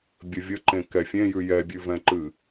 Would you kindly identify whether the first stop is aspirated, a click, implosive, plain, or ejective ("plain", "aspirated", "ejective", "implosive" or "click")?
plain